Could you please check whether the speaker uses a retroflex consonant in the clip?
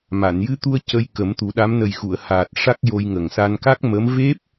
yes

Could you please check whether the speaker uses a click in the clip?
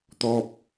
no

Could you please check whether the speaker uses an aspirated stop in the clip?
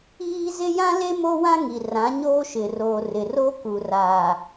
no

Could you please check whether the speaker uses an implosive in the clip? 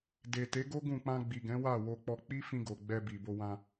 no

